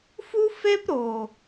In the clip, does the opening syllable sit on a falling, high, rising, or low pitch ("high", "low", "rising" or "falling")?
high